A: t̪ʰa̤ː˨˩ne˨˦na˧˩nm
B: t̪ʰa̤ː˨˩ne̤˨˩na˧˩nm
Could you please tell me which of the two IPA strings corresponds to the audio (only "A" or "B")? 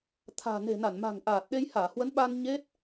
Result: B